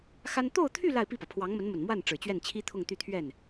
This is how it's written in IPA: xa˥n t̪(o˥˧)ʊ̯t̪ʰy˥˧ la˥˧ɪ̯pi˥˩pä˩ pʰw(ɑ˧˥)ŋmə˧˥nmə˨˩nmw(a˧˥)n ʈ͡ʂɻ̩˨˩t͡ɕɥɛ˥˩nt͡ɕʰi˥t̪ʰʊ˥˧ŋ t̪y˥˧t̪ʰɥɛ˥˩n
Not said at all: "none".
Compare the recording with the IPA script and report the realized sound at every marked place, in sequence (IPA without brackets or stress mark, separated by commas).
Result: o˥˧, ɑ˧˥, a˥˩